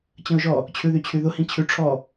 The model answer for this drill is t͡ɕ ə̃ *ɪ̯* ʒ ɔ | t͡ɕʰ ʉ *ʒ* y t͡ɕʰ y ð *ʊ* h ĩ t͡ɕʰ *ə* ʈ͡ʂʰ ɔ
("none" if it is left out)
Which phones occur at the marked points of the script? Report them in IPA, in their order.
ʊ̯, ð, ʊ, ʉ

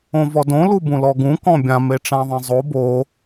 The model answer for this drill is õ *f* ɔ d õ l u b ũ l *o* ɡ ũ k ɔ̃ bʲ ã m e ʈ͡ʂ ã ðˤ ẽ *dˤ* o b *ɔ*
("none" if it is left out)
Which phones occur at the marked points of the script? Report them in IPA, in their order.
v, ɔ, zˤ, o

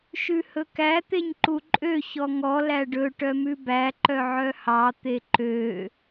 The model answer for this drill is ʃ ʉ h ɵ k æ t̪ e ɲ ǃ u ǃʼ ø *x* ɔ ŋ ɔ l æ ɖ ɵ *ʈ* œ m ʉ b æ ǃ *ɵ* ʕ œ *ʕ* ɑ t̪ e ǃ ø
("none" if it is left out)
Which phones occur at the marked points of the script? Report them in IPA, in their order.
ç, ʈ, œ, h

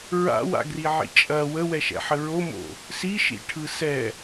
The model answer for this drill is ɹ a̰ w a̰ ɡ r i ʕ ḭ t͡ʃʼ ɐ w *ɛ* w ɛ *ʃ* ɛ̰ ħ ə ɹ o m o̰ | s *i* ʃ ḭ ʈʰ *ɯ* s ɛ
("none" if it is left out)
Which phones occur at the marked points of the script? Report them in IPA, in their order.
ə, ʃ, i, ɯ

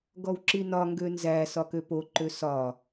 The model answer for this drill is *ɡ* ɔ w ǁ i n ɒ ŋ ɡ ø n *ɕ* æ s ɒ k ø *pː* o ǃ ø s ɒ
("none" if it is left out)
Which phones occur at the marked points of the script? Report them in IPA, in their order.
ɡ, z, p

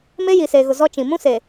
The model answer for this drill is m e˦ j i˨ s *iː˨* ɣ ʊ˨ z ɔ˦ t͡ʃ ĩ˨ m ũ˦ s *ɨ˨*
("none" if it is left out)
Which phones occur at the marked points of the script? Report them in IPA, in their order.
eː˨, e˨

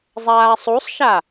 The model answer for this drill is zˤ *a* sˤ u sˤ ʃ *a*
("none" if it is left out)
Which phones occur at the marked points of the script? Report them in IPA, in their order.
aː, a

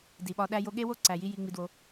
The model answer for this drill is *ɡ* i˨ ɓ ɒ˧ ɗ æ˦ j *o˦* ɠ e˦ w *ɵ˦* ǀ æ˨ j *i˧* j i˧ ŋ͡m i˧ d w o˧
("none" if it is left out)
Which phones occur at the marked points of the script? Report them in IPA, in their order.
d, o˦, o˦, i˧

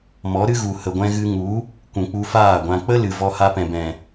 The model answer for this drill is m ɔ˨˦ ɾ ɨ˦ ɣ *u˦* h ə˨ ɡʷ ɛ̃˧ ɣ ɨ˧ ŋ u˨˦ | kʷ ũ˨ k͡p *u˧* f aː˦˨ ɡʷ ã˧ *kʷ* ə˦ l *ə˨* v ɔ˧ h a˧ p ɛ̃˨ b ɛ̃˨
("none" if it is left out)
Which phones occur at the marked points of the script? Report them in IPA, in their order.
u˨, u˧, k͡p, ɨ˨

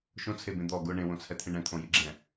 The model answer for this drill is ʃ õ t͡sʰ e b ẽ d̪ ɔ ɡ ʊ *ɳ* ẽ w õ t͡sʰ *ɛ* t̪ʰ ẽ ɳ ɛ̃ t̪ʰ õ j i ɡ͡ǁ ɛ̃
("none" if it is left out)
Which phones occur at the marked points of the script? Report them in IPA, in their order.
ɳ, ɛ

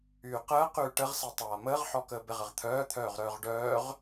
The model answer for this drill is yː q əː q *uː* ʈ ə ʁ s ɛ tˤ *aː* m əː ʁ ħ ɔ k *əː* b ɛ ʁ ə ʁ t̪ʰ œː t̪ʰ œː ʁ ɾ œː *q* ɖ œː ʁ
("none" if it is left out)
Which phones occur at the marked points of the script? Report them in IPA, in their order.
yː, aː, əː, ʁ

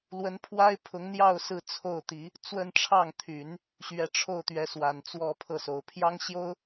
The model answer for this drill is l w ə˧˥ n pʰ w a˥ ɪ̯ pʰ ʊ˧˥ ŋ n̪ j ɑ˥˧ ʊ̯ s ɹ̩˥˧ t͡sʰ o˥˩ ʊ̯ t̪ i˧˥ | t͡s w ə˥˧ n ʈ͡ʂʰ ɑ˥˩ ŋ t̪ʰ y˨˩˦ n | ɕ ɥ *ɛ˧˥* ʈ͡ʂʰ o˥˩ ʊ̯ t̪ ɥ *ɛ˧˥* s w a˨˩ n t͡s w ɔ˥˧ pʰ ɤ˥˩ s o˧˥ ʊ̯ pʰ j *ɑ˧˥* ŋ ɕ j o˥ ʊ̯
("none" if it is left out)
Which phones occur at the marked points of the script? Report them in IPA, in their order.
ɛ˧˥, ɛ˧˥, ɑ˥

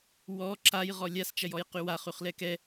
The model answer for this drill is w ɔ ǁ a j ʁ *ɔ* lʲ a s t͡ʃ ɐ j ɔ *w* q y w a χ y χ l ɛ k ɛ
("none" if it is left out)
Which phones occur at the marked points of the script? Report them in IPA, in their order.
ɔ, j

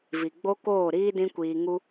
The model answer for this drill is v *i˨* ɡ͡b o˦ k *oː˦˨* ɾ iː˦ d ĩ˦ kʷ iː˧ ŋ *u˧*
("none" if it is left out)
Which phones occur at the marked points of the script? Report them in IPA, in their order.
i˨, oː˦˨, u˧

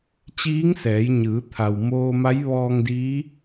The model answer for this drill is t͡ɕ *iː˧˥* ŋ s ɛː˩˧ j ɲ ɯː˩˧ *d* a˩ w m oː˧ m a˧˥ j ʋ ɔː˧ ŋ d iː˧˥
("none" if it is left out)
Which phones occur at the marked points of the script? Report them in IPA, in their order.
iː˧˥, t̪ʰ

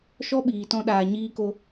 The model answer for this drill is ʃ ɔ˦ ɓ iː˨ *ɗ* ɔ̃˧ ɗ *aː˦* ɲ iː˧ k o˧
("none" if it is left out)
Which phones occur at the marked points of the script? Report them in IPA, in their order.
t, aː˨

